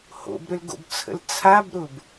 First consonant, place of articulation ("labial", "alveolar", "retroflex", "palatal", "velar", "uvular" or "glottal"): glottal